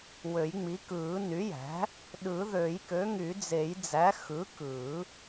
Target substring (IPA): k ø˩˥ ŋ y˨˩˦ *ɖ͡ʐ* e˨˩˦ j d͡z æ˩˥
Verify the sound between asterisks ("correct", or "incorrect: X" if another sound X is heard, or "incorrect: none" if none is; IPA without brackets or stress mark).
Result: incorrect: d͡z